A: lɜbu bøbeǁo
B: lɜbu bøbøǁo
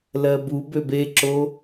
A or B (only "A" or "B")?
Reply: A